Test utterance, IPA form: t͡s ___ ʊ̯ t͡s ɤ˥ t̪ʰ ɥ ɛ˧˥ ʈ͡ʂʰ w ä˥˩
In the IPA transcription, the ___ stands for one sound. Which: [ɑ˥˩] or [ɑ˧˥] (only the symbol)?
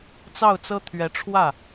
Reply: ɑ˥˩